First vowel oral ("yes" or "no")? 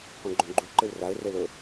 no